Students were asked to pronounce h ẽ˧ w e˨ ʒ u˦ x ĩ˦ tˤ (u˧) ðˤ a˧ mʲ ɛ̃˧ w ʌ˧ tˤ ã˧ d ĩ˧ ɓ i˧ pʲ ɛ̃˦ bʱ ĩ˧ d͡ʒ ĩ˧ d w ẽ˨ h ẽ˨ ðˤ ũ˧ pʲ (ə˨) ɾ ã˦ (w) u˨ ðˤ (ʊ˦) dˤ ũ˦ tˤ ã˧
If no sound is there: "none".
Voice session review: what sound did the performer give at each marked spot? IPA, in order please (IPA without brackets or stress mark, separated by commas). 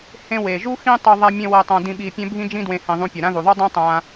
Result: u˧, ʌ˨, ð, u˦